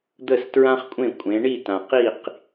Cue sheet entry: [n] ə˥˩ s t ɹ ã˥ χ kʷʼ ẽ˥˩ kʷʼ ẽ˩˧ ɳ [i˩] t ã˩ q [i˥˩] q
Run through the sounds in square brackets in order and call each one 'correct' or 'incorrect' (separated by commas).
incorrect, incorrect, correct